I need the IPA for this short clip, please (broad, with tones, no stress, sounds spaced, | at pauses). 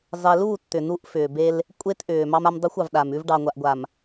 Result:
zˤ e˨ l uː˦˨ t t̪ ʏ˨ n u˦ ʔ f ʏː˨ b e˦ l | kʷʼ e˦ t ʔ ʏː˨ m ɑ˦ m a˦ m dˤ u˦ xʷ ɑ˨ v ɗ a˨ m ʉ˦ v ɖ ɑ˨ ŋʷ a˨ ʔ ɡʷ a˨ m